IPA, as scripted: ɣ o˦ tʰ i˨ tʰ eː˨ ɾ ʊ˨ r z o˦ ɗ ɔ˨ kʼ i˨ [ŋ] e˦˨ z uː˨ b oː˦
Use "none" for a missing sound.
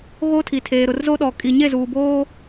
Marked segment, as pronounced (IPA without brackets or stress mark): ɲ